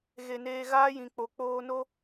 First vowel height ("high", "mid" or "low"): mid